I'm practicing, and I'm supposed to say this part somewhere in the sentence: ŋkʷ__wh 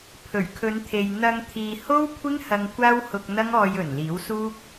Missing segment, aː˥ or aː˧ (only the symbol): aː˥